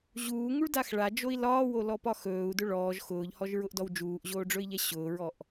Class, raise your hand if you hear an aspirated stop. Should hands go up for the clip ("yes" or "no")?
no